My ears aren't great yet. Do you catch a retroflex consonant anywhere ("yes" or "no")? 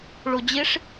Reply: yes